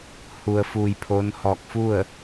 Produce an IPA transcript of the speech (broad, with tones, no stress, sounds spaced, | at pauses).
h u˩ ə̯ f uː˩ j pʰ oː˧˥ n h ɔː˧˩ k̚ f u˥˨ ə̯